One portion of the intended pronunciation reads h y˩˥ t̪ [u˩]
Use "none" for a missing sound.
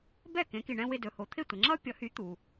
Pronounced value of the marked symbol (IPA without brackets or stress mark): u˩